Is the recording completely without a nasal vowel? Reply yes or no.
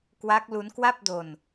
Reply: yes